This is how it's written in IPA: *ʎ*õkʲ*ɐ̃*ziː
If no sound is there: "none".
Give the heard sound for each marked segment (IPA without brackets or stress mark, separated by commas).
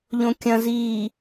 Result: ʎ, ɐ̃